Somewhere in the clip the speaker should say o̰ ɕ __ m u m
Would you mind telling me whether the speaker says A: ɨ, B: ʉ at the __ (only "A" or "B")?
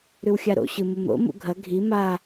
A